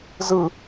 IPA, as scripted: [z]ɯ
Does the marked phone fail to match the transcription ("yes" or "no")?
no